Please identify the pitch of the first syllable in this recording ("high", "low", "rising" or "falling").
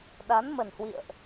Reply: rising